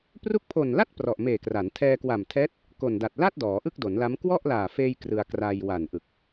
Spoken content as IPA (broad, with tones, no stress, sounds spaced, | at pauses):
p r u˦˥ k̚ pʰ o˨˩ n l a˥˩ t̚ p r ɔ˨˩ ʔ m eː˨˩ k r a˩˦ n tʰ ɛː˧ k w a˨˩ m tʰ ɛː˦˥ t̚ | k o˨˩ n d a˨˩ t̚ l a˥˩ t̚ d ɔː˩˦ ʔ ɯ˥˩ k̚ d o˩˦ n l a˦˥ m k w ɔ˥˩ ʔ l aː˨˩ f eː˧ j k r ɯ˧ a̯ k r a˧ j w a˨˩ n ʔ ɯ˨˩ k̚